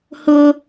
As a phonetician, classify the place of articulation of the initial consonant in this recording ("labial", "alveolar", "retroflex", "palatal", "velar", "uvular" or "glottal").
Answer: glottal